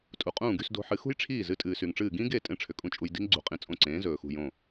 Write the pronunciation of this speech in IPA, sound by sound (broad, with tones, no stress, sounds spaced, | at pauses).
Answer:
tʼ u˩ qʼ ũː˥˩ ɡ y˧ s d o̤˧ ħ ɨ˩˥ x ṳ˥ j ʈ͡ʂʰ iː˥˩ z ɨ˧ tʼ ɨː˩ s y˩ ŋ ʈ͡ʂ ɨː˥˩ ɡ ĩ˥ ɡ e˥˩ tʼ ẽ˥ ʈ͡ʂʰ ʏ˩ kʼ ũ˥ t͡ʃʼ u˧ j d i̤˥ ŋ ɡ͡ǀ ṳ˩˥ qʼ ĩ˩ t͡sʼ õ˥˩ ǀ ẽː˩˥ z ɵː˩ x ṳ˥˩ j õ˥˩